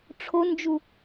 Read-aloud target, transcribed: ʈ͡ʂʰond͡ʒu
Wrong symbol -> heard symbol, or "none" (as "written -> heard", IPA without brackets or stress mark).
none